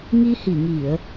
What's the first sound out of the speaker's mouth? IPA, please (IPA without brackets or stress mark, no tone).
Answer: ŋ